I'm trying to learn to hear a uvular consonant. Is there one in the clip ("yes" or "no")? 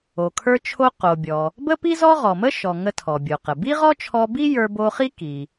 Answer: yes